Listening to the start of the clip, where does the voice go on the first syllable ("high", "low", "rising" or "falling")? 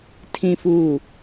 low